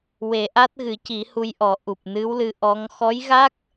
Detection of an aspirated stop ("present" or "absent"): absent